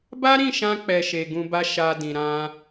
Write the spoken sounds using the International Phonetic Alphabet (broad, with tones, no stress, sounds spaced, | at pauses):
b a˦ ɾ ĩ˦˨ ʃ ã˧ k͡p ɛ˨ ʃ e˨ ɡ ũ˧ b a˦ ʃ a˧ d ĩ˨ ɾ ã˧